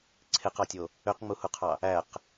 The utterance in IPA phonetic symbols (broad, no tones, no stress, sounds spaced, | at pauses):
ǀʰ e q ɑ tʲ o | ø q ŋ͡m u h u qʰ ɑ | æ q